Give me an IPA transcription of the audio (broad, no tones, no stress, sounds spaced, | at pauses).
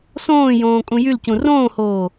s õː j õː kʼ ũ j y l c ũ r õː h oː